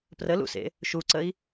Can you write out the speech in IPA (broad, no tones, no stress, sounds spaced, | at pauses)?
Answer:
p r ə l ṵ s ḛ | ʃ u ǀ ə i̯